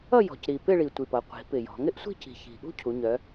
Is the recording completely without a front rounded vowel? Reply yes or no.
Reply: no